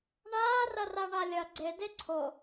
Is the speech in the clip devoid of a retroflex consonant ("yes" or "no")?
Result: no